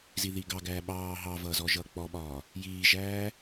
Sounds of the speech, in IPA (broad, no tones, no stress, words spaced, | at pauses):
ziðiɡɑɡæː ɓɑː ɦɑvʌː zɔʒʌːk͡pɔɓɒː | jiːʒæː